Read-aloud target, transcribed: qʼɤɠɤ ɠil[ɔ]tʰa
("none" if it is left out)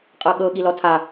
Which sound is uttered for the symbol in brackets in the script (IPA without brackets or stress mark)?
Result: ɔ